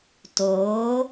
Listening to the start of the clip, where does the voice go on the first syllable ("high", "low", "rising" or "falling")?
rising